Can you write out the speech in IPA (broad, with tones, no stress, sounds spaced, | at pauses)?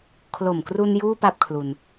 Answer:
kʰ l o˨˩ m k r u˧ n j uː˥˩ p a˥˩ p̚ kʰ l u˧ n